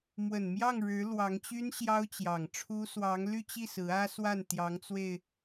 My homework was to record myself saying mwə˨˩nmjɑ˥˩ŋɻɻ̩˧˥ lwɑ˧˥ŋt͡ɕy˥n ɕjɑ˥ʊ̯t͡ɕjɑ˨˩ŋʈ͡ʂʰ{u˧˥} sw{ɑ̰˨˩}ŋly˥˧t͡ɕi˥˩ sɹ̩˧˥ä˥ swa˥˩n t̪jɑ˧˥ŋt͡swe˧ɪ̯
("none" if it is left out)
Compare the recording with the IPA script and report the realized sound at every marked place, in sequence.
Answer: u˥, ɑ˧˥

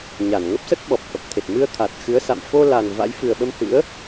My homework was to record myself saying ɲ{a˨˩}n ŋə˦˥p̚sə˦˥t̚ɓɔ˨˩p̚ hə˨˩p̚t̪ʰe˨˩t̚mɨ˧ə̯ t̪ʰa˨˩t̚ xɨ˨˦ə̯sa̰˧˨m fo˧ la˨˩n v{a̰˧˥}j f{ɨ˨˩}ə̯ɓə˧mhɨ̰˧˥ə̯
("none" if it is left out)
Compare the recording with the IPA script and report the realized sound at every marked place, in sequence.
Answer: a˧˩, a̰˧˥, ɨ˨˩

